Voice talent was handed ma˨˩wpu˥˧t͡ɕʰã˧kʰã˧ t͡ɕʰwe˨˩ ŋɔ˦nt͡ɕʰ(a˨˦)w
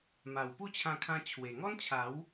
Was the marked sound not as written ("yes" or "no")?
no